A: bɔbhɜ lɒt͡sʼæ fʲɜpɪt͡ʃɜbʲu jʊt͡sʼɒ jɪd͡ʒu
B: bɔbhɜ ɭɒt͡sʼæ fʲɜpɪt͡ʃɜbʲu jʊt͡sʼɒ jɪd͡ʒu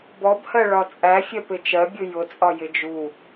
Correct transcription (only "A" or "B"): B